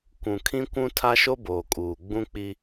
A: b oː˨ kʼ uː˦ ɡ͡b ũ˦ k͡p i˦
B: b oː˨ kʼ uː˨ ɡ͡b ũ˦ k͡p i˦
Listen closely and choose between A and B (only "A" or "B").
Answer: B